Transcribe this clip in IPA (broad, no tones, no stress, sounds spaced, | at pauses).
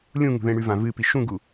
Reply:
lʲ ũ ŋ ṳ ð ẽ ɽ ʉ v ã v ɨ p i ʃ ũ ɡ u